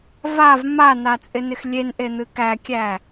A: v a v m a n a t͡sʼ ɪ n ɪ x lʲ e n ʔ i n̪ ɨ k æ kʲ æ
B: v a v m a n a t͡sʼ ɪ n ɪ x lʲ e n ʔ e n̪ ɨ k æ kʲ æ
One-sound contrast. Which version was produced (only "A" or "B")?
B